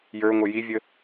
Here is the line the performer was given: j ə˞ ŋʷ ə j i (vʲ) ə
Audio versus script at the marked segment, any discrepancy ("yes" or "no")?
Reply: no